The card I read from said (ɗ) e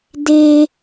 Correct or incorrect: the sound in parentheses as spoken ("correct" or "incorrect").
incorrect